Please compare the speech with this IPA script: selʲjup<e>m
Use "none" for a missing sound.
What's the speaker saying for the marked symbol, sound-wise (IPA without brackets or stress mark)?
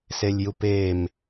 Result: e